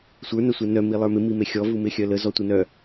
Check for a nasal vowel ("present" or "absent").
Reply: absent